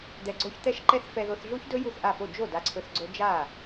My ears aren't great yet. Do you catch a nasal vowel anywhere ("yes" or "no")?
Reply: no